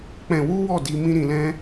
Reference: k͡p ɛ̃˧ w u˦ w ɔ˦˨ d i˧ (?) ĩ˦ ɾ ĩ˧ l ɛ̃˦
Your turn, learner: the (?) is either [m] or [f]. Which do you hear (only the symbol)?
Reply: m